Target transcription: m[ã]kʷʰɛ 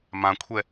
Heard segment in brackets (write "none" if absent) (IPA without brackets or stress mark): ã